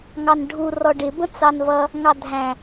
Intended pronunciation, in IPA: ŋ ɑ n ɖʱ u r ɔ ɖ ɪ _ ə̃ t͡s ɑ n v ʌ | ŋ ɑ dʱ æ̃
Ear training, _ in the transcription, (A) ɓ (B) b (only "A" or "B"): B